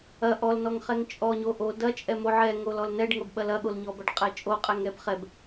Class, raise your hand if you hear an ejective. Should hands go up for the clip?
yes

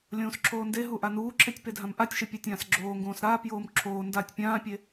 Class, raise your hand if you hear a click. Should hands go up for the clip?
yes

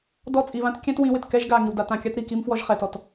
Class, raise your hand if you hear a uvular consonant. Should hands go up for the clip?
yes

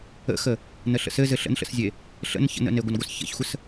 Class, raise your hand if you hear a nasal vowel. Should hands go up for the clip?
no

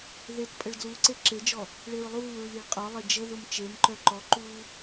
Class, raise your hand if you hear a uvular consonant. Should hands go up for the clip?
yes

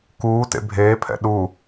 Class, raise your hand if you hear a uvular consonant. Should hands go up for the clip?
no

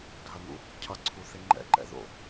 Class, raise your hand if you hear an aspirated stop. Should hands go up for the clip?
yes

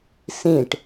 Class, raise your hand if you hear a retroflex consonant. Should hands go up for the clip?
yes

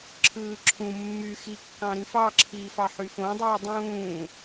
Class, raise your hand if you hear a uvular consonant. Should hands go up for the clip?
no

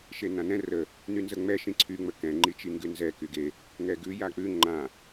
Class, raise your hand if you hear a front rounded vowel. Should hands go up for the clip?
yes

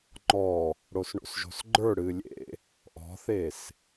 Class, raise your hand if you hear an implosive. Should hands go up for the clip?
no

